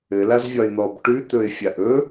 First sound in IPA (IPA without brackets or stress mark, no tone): ɘ